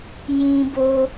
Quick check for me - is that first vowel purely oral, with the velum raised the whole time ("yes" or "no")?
no